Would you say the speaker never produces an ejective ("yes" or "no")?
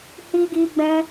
yes